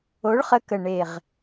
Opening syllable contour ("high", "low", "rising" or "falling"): rising